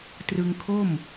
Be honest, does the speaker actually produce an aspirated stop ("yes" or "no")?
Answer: yes